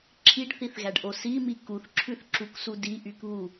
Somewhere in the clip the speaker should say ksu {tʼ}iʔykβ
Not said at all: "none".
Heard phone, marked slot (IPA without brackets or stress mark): d